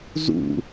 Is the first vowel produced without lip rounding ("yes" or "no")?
no